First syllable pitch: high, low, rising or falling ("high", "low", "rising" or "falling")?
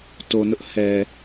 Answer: low